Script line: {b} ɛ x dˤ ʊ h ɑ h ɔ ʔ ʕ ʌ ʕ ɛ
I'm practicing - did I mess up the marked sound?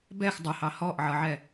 no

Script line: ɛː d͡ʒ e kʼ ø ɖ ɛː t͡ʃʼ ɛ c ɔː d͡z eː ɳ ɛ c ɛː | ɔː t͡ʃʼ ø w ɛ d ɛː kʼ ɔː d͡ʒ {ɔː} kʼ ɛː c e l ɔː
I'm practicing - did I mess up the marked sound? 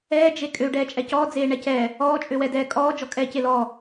yes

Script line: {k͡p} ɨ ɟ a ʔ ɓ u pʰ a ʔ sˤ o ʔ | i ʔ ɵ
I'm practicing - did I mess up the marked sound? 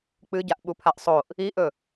no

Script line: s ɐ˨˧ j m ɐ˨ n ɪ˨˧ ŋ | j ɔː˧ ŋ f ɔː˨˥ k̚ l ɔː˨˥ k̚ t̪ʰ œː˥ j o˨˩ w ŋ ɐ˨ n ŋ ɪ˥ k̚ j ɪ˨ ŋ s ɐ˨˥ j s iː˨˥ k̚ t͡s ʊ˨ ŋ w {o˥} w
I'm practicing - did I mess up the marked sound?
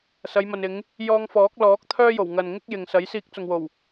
yes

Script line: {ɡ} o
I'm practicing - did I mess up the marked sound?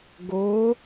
no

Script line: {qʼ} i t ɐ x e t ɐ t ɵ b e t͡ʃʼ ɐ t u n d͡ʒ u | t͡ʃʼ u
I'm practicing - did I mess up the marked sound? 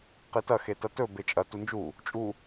yes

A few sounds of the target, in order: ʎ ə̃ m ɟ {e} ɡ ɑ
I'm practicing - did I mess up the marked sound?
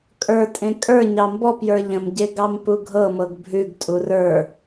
no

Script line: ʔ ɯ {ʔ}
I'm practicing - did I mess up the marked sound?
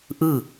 yes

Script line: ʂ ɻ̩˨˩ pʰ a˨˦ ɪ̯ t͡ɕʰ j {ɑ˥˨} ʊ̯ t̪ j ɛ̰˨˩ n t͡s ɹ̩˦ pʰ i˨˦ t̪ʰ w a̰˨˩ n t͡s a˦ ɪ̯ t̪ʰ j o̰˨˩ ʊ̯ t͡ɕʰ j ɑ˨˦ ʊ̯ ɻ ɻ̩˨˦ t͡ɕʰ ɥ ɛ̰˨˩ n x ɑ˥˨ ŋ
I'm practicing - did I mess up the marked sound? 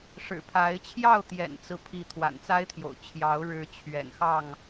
no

